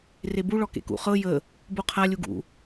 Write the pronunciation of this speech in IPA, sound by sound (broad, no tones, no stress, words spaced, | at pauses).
rebu ɭɔkḛkṵ χɤ jə | buqʰa lʲuɡṵ